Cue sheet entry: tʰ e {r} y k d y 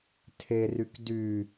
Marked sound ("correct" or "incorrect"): correct